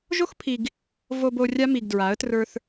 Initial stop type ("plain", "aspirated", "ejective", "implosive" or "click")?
aspirated